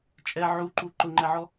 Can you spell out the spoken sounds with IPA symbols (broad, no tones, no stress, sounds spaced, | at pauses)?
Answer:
t͡ʃʼ ɛ ʕ u ǃ u ǃ ʊ ŋ͡ǃ ɛ ʕ ɔ